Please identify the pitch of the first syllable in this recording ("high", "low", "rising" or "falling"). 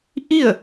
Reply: falling